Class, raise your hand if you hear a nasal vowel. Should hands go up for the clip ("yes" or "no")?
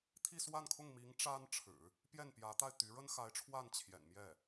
no